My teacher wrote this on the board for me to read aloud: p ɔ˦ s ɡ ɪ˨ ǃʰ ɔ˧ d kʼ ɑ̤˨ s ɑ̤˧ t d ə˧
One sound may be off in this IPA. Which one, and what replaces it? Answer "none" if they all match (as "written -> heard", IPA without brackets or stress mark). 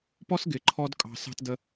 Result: none